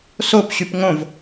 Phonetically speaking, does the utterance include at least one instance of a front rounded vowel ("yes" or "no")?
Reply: yes